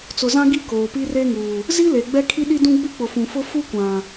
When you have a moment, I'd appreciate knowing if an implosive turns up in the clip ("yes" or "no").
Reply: yes